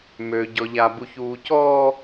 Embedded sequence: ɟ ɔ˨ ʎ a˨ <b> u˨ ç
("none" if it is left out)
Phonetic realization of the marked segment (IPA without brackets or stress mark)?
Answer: b